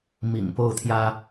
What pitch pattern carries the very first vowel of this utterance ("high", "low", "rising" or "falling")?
low